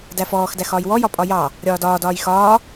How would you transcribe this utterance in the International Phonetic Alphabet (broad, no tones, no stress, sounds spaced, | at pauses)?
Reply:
d æ f ɔː x d æ x ɒː j w ɔ j ɒ pʼ ɒ j ɑ | ɾʲ ɒː d ɒː d ɒː j x ɒː